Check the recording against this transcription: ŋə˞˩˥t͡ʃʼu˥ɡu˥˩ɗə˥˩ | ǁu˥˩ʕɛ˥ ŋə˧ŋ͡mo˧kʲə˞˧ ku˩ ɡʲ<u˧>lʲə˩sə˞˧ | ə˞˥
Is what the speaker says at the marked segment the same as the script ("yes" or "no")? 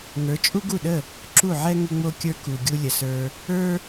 yes